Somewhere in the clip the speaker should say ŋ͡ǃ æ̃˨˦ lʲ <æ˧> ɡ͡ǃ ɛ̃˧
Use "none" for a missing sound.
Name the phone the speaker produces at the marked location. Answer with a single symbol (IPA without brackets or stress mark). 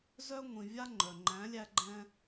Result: æ˧